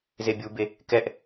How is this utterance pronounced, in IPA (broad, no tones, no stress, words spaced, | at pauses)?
zebʲube | kɛʔ